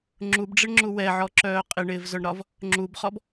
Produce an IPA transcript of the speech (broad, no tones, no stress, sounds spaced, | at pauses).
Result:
ŋ͡ǁ u b ɖ͡ʐ ɪ ɳ ŋ͡ǁ u w ɛ ʕ ɔ ǁ œː qʼ ɪ ɳ ɪː v z œ ɳ ɾ ɒ v | ŋ͡ǁ u b χ ɔ b